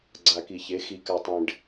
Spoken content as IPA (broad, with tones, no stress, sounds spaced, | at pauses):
ɡ͡ǀ a˨ k i˨ ç e˨˦ x i˨ k a˨ tˤ ẽ˨ ɖ